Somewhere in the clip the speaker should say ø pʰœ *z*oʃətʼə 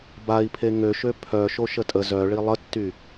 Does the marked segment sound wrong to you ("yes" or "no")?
yes